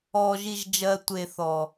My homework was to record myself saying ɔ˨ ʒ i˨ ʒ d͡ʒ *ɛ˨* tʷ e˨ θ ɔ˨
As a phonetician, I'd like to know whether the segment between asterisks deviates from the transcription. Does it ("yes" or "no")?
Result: yes